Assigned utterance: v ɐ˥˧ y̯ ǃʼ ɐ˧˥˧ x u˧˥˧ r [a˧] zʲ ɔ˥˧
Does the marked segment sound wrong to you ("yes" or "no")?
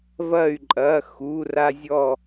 yes